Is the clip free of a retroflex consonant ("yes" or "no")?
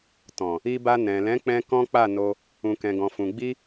yes